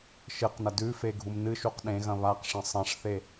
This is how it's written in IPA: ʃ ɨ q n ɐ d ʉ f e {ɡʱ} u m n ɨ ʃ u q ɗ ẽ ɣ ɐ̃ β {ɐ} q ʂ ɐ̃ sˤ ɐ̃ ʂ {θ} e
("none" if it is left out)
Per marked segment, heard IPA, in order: ɡʱ, a, θ

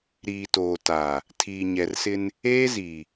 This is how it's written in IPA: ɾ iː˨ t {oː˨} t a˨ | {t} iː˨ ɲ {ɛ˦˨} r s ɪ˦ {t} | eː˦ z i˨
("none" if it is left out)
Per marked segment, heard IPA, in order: oː˨, tʰ, ɛ˨, n

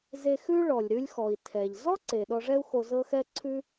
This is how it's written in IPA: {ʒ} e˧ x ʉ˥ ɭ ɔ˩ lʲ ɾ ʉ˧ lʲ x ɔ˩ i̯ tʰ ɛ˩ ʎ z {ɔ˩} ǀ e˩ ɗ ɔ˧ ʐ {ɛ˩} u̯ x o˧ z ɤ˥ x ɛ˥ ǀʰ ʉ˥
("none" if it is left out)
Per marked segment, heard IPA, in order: z, ɔ˥, ɛ˥

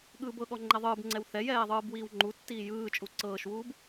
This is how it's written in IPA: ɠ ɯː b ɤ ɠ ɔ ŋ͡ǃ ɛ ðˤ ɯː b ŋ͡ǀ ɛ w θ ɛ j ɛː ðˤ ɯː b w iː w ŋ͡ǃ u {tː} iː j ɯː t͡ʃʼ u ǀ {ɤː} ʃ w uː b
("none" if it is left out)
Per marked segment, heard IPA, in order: tː, ɤː

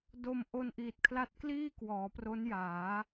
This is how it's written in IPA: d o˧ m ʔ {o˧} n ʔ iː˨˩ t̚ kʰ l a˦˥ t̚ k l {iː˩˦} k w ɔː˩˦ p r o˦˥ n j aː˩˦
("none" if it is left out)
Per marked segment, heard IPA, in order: o˧, iː˥˩

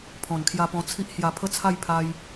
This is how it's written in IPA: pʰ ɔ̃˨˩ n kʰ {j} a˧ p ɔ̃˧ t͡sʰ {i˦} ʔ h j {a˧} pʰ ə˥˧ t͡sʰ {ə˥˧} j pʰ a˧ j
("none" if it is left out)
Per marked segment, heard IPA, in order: j, i˦, a˧, a˥˧

